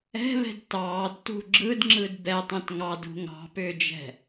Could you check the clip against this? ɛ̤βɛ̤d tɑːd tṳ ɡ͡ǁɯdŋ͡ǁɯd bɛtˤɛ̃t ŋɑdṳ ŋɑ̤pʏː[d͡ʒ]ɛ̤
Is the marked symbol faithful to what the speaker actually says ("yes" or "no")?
yes